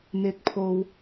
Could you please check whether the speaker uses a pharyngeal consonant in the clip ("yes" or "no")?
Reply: no